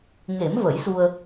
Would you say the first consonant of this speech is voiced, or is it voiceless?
voiced